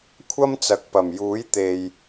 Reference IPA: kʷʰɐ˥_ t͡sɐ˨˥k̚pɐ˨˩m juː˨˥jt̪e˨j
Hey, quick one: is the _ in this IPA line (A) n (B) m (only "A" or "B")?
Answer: B